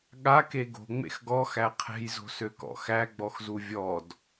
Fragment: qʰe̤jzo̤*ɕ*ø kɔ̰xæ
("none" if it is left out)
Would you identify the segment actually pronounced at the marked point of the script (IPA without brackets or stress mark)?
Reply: s